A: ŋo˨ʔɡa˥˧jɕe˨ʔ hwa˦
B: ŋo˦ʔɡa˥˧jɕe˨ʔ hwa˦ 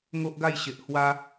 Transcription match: B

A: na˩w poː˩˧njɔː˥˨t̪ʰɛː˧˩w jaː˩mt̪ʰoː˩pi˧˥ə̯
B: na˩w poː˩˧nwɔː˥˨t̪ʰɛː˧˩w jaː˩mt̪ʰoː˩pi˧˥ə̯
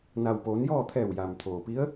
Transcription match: A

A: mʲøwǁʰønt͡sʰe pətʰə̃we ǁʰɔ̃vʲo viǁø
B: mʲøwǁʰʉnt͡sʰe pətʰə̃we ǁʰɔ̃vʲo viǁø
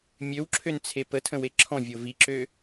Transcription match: A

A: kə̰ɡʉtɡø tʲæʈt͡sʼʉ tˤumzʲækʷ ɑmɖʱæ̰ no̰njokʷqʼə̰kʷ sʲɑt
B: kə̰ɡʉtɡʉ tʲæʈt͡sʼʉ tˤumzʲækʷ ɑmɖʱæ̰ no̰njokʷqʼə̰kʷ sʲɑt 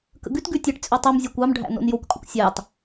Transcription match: B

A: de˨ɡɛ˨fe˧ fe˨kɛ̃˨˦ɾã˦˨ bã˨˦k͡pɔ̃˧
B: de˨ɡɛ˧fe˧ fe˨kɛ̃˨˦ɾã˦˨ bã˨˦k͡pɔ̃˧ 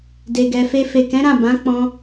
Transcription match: A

